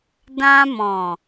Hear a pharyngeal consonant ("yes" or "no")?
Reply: no